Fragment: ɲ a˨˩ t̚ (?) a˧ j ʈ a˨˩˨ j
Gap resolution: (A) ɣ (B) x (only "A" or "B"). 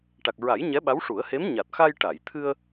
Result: B